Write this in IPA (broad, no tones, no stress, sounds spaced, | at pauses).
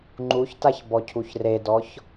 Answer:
ŋ͡ǃ u ç t a ç b ɔ cʰ u ç r e d ɔ ç